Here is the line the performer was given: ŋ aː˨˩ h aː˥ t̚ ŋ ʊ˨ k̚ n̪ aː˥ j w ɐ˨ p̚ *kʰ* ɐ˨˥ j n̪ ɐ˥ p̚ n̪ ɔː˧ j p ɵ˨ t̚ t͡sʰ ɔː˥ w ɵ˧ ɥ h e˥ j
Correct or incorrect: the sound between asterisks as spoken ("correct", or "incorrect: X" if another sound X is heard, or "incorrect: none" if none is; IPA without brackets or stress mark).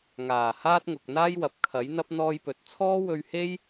correct